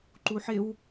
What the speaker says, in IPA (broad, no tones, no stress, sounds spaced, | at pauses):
ǃ u ħ ɪ w